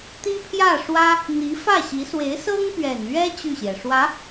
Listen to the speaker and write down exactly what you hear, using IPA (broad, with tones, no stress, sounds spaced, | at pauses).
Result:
t̪ i˥ pʰ j ä˥˩ ʂ w ä˥ | n̪ i˧˥ f ä˥˩ ɕ i˧˥ s w e˧˥ ɪ̯ s ɤ˥ ŋ p ɥ ɛ˨˩ n ɥ ɛ˥ t͡ɕ y˥˩ ɕ j ɛ˩ ʂ w ä˧˥